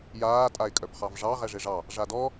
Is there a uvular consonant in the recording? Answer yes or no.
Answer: yes